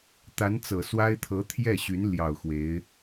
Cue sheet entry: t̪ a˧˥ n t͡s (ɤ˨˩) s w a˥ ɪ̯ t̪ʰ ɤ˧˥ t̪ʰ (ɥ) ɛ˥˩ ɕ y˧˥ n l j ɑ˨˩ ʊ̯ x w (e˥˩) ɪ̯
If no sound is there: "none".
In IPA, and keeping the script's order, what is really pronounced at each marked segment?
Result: ɤ˨˩, j, e˧˥

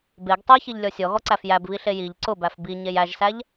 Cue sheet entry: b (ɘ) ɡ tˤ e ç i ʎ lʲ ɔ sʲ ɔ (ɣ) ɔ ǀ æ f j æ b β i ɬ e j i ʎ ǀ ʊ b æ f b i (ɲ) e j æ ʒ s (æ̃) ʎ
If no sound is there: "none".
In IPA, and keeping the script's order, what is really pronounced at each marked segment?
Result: e, ɣ, ɲ, æ

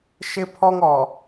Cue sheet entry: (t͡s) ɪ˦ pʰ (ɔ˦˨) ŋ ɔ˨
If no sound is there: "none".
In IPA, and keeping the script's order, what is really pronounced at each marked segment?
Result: ʃ, ɔ˦

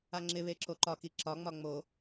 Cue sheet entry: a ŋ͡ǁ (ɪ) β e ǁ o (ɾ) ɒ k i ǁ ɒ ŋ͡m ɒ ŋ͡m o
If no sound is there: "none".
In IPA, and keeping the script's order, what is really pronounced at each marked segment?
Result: ɪ, ǃ

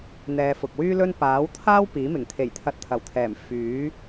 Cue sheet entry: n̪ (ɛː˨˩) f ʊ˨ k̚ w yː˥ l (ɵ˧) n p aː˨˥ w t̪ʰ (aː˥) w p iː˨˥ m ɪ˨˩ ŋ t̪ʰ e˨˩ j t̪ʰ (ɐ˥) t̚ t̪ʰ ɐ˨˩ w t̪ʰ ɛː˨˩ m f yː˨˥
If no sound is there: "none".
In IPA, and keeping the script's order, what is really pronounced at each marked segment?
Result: ɛː˨˧, ɵ˥, aː˥, ɐ˨˥

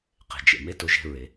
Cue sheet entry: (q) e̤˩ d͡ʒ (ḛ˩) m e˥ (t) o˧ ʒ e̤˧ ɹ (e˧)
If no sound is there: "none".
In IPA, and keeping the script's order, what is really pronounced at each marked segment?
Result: q, ḛ˩, t, e˩

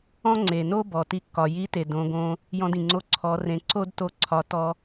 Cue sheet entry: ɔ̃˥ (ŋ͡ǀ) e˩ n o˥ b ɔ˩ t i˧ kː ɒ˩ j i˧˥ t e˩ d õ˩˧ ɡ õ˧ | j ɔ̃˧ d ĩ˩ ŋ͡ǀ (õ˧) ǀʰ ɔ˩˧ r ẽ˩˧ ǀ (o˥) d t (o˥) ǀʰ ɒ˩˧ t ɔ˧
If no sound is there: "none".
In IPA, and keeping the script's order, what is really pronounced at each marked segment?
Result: ŋ͡ǀ, o˧, o˥, o˧

